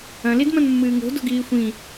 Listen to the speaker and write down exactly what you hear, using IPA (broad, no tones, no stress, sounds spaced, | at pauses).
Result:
ɐ̃ l i d m ɐ̃ n mː ɨː ŋ o̤ d o̤ ɡ iː xʷ ĩ